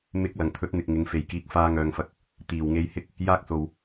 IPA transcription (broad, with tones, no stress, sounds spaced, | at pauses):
m ɪ˨˥ k̚ l ɐ˨˩ ŋ t̪ʰ ɵ˨˥ t̚ n̪ ɪ˨ k̚ ŋ ɪ˨˧ ŋ f e˨˩ j k iː˨˥ k̚ f aː˧ ŋ œː˨ ŋ f ɐ˨ k̚ | t̪ iː˨˩ w ŋ e˧ j h ɪ˥ k̚ | j aː˥ k̚ s o˨ w